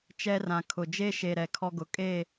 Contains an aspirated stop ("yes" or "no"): yes